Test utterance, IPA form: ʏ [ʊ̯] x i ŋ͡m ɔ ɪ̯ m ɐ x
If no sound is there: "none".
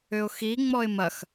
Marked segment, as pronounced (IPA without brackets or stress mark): ʊ̯